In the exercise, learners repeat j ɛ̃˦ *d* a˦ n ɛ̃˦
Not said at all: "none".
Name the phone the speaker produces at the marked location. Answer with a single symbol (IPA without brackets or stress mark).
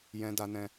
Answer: d